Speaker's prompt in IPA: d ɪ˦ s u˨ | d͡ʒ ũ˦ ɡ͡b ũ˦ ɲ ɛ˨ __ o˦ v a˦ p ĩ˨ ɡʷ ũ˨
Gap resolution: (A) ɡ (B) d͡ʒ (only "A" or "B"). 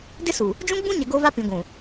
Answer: A